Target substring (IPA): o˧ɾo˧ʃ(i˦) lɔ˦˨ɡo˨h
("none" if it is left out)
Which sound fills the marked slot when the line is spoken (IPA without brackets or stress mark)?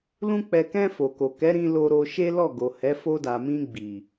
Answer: e˦